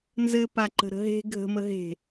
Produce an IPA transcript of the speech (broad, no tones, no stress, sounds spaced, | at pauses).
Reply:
n z ɘ p a ǃ ə̤ ɾ ə̤ ɦ e̤ ɡʱ ə̤ m ə ɦ e̤